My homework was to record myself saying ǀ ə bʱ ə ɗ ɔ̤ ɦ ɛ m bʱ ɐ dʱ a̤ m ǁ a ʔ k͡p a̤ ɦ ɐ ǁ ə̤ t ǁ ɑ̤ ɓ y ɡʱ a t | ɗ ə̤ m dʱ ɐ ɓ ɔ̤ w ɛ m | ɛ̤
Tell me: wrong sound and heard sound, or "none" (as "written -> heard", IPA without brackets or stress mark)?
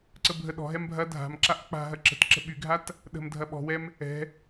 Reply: ɑ̤ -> ə̤